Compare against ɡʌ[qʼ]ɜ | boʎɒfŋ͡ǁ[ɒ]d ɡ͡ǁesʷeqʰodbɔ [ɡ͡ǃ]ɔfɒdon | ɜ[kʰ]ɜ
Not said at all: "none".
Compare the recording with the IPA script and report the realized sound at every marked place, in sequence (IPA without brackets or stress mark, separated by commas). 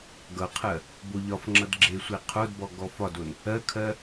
qʰ, ʌ, ɡ, kʰ